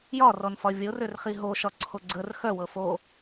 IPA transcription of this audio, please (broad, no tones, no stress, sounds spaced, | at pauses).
j ɒ r ɔ n f ɒ vʲ o r ø r χ i ɦ o ʃ ɒ ǀʰ o ɡ͡ǀ ə r x œ w ɤ f o